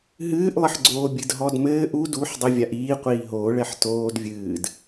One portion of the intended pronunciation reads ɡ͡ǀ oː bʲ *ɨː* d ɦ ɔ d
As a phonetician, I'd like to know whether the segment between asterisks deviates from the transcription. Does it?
yes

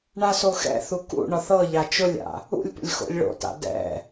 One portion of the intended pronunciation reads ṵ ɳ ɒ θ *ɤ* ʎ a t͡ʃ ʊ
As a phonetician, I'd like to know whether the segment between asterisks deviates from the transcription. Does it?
no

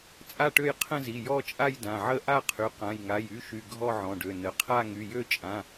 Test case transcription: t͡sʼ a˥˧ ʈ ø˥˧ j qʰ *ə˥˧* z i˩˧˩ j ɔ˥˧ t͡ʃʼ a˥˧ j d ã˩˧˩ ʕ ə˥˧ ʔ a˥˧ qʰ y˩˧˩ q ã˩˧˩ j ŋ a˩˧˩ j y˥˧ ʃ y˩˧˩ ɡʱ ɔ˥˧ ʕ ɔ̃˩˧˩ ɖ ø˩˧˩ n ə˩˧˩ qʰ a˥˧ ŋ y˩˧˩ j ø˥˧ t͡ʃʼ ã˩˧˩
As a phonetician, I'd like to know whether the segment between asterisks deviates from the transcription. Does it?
yes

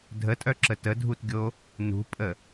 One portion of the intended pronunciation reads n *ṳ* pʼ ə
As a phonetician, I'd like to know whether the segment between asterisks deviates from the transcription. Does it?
no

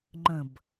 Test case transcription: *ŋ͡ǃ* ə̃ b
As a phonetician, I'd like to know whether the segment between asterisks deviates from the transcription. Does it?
no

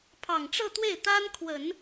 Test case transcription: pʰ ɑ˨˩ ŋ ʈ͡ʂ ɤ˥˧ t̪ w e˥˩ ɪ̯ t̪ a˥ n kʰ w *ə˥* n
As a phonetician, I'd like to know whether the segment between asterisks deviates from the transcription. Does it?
yes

